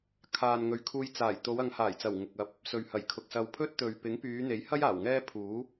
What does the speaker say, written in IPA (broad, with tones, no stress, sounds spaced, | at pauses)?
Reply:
kʰ aː˨ n ŋ ɵ˨ ɥ kʰ uː˧ j t͡s aː˨˩ j t̪ o˨˧ w ɐ˨˧ ŋ h aː˨˩ j t͡s ɐ˨˩ w ŋ ʊ˨ k̚ ɐ˧ p̚ | s ɵ˨ ɥ h ɐ˨˩ j kʰ ʊ˨ k̚ s ɐ˧ w pʰ ɵ˥ t̚ t̪ ɵ˨ ɥ p ɪ˨˥ ŋ p yː˨˧ n̪ e˨˥ j h ɐ˥ j aː˨˩ w ŋ ɛː˥ pʰ uː˨˥